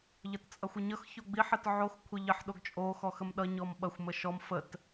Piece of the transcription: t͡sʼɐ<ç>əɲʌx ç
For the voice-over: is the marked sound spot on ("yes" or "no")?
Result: no